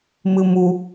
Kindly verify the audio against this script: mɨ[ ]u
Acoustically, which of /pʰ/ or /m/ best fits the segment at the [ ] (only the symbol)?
m